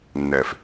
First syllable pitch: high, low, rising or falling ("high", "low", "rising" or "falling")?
low